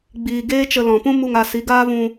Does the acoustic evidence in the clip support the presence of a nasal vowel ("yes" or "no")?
yes